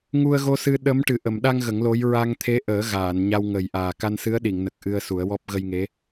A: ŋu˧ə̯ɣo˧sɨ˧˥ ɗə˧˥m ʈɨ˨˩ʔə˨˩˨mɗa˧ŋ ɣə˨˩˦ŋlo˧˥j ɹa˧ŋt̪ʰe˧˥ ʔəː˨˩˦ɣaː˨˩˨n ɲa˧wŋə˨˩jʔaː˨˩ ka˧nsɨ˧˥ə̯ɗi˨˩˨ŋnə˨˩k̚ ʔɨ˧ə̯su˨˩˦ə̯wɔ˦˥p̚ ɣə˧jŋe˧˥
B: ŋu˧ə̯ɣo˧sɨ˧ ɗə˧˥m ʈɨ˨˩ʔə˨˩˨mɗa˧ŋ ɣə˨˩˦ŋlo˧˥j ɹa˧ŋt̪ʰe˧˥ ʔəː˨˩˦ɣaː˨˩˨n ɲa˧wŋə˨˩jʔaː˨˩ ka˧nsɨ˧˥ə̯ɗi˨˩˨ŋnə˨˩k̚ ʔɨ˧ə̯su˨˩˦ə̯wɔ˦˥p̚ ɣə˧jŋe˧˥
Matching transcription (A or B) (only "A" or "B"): B